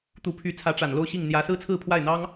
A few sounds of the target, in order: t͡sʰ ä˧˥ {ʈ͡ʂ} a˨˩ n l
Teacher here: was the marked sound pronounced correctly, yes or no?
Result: yes